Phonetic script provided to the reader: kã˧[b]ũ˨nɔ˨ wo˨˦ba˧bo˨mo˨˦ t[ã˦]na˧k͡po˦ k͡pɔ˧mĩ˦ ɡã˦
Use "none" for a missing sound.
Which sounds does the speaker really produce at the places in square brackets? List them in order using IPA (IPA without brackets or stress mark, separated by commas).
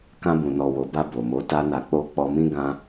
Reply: b, a˦